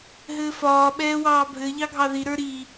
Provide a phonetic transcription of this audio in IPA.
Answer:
ɦ ɘː f ɒː ɓ ɛː w ɑː bʱ ɘ ʎ ɑ ɡʱ ɑ ð i ɾ ə˞ ɾ i

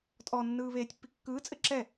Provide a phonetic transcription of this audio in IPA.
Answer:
tʼ ɔ nː ɯː β eː tʲ pː i kː ɯː t͡sʼ ɘ ǁ ɛ

